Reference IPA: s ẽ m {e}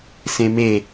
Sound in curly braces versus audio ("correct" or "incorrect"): correct